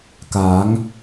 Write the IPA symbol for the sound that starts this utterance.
k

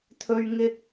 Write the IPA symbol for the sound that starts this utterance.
t̪ʰ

